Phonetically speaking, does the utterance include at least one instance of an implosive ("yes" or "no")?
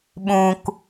yes